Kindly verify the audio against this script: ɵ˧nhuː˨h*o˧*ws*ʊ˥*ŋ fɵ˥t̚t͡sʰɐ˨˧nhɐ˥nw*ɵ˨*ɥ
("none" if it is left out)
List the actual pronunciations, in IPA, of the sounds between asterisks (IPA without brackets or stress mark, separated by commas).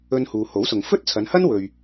o˨˥, ʊ˨, ɵ˨